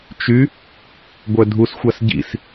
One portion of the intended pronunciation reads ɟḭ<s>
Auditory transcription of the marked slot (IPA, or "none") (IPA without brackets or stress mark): s